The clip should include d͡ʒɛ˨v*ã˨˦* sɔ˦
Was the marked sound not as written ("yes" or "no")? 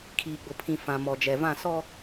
yes